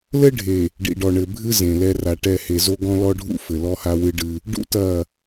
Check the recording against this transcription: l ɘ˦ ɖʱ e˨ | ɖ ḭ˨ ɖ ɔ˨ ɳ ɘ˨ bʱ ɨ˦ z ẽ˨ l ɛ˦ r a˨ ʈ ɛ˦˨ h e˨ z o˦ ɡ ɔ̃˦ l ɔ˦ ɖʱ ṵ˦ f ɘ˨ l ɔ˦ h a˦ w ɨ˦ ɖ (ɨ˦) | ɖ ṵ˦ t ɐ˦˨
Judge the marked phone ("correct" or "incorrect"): correct